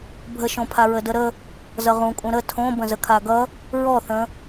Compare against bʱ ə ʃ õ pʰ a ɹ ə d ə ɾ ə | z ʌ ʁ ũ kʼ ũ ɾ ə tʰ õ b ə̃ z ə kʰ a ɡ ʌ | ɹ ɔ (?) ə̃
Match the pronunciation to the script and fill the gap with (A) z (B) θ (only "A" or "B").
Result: B